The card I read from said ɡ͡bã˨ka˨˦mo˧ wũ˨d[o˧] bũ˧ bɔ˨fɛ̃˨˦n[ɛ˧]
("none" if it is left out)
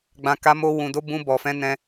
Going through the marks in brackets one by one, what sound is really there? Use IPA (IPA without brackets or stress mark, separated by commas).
o˨˦, ɛ̃˧